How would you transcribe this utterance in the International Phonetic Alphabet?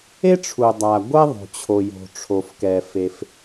e˥ ʈ͡ʂʰ u˩ dˤ a˩ ɡʷ ɛ˥ ðˤ o̤˩ t͡ɕʰ o˩ j o̤˩ ʈ͡ʂʰ o˩ f k ɛ˩ f e˩ f

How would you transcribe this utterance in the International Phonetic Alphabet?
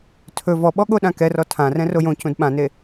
tʰ ɵ v ɔ ɓ ɔ ɠ o ɗ ã k ɛ r ɔ tʰ ã r ɛ̃ r o j õ c ũ d ɓ ã n e

